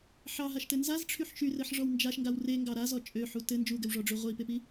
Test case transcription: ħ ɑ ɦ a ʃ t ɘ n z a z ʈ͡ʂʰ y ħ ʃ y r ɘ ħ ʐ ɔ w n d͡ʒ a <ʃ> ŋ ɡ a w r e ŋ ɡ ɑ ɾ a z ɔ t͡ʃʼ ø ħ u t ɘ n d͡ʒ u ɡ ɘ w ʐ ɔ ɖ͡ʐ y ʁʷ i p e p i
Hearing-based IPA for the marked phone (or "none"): ʃ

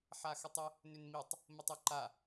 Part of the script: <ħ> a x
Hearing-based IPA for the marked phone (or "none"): ħ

